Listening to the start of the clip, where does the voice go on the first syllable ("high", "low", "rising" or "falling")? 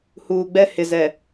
low